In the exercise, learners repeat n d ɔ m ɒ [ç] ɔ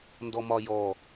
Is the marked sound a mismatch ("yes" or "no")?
yes